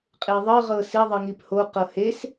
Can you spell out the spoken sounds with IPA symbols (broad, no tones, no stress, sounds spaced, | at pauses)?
qʼ e ðˤ ɤ ʁ ɤ s i ðˤ ɯ ŋ i p h o q ɤ h e s